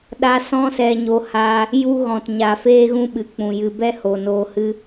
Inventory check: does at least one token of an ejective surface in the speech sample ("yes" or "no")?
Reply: no